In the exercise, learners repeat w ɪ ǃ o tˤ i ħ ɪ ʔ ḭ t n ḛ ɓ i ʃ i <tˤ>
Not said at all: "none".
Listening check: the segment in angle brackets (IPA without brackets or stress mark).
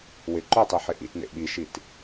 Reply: t